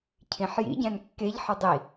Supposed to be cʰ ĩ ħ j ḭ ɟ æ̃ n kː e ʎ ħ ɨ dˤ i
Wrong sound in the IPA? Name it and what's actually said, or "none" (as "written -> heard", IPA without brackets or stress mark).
none